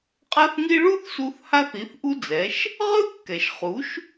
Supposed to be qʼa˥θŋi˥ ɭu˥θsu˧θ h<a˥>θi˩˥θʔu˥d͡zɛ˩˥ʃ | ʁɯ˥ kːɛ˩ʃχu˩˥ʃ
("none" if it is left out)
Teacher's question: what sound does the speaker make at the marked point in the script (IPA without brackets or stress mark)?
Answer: a˥